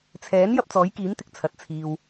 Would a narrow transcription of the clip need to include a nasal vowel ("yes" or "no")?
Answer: no